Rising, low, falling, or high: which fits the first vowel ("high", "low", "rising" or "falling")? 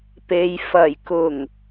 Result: low